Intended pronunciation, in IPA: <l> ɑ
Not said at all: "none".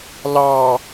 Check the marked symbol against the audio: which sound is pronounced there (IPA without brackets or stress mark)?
l